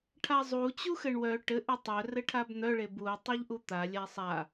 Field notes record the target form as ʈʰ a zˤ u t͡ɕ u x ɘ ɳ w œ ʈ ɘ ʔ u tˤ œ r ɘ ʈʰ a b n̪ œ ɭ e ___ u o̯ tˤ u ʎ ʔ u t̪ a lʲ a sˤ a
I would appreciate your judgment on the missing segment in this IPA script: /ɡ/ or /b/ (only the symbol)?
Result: b